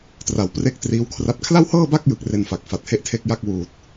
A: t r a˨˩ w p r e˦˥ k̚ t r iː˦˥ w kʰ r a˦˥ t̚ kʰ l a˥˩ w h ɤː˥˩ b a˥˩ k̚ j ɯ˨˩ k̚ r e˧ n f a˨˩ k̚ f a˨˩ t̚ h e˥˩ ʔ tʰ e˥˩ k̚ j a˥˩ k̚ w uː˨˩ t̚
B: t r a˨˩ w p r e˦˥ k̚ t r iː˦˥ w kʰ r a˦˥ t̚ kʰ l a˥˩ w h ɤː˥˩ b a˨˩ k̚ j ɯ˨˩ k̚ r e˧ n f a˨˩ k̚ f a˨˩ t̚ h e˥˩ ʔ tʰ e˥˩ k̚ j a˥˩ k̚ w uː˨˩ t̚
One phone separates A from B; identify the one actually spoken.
A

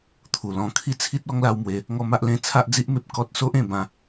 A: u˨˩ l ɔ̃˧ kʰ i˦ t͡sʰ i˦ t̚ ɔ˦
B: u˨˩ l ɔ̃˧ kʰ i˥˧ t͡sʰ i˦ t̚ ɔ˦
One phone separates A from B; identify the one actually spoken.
B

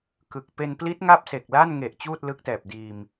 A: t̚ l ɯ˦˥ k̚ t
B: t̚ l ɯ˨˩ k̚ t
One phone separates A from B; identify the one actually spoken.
A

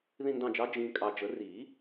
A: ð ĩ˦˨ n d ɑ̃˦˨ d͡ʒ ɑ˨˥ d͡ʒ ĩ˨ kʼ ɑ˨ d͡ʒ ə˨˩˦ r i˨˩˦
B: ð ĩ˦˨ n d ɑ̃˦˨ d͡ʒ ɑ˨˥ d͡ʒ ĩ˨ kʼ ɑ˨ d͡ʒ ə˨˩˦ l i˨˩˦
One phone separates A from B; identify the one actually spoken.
A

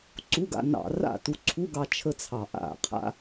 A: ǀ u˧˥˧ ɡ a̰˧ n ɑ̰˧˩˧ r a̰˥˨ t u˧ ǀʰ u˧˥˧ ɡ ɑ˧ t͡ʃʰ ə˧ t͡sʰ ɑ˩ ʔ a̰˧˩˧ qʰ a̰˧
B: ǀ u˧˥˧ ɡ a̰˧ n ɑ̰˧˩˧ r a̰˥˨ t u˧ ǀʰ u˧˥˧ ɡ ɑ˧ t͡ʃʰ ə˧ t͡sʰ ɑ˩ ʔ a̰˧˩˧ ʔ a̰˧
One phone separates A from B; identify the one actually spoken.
A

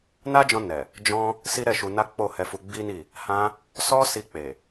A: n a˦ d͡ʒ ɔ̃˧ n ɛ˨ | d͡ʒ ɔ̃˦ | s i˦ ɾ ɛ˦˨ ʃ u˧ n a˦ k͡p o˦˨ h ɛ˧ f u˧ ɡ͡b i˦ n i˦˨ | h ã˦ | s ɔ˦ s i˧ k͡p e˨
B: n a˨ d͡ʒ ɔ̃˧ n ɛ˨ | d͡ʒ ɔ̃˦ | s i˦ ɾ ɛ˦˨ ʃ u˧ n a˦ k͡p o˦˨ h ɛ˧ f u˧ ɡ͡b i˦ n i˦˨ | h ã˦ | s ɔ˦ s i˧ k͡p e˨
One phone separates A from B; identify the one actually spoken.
A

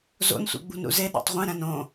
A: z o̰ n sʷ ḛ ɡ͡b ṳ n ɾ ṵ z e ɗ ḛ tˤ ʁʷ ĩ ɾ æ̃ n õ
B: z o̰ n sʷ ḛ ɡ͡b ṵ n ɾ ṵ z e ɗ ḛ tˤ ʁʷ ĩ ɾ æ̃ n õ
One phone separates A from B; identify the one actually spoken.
A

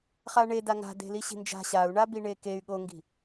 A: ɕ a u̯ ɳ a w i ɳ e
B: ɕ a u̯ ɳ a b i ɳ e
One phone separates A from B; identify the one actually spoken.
B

